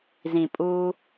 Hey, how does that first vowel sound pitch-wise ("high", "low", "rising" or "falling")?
low